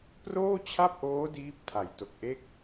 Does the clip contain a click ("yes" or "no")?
no